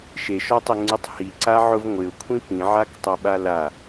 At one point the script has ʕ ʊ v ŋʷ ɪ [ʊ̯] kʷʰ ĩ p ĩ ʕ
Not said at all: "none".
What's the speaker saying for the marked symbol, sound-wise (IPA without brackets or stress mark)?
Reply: ʊ̯